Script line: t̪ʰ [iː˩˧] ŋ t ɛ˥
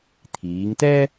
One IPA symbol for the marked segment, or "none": iː˩˧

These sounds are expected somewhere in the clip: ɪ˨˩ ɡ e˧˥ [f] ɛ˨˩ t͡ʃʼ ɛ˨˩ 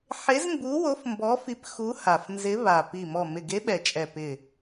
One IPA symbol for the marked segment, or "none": ɓ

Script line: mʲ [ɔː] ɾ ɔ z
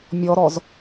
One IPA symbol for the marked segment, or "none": ɔ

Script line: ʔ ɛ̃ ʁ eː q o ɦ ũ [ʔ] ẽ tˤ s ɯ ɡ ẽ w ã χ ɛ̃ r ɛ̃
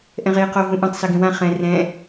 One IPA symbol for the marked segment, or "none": ʔ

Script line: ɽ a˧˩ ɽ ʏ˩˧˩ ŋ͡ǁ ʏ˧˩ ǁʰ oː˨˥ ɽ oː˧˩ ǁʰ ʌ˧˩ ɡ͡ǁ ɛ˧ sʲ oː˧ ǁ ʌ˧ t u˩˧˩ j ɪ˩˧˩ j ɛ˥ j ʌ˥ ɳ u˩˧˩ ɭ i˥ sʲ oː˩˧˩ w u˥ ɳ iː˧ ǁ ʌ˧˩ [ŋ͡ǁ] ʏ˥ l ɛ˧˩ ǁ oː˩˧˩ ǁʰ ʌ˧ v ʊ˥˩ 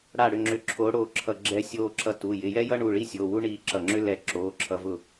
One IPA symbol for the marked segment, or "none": ŋ͡ǁ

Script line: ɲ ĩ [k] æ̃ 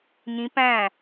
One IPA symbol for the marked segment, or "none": p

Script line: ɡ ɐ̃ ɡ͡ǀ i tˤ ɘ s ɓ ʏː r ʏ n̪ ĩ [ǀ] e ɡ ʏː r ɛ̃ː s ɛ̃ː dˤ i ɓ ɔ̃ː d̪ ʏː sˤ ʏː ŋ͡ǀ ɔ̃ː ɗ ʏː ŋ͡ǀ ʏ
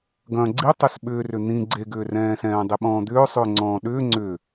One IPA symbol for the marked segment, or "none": ɡ͡ǀ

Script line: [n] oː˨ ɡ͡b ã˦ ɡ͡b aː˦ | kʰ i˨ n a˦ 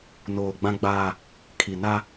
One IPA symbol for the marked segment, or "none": n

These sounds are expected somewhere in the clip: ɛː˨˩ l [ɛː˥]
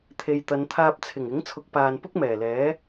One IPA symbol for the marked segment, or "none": ɛː˨˥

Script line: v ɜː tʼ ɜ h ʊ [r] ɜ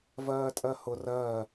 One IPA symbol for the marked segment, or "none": r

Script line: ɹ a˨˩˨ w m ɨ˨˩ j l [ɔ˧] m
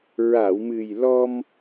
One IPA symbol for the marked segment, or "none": ɔ˧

